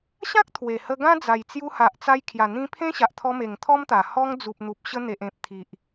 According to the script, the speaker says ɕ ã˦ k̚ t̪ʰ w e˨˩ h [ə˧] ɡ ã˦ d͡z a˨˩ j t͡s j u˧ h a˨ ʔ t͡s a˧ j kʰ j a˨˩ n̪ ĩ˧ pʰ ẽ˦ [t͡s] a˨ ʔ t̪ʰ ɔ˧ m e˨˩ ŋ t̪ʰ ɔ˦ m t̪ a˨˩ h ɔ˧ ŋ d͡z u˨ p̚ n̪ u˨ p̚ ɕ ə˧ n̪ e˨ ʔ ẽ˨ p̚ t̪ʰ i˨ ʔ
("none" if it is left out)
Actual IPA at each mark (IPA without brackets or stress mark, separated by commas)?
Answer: ə˧, ɕ